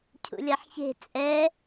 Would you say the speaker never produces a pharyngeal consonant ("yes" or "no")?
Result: no